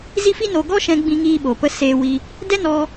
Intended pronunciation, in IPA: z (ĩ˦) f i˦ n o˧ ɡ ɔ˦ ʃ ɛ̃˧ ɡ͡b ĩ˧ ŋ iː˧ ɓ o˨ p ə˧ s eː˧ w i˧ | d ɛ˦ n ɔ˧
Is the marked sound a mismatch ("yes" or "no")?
yes